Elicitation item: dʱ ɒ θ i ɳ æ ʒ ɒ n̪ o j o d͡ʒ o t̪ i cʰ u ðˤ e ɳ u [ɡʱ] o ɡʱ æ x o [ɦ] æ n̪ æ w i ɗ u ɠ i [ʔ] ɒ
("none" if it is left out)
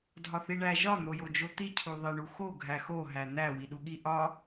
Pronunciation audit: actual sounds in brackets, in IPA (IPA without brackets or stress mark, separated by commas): x, ɦ, ʔ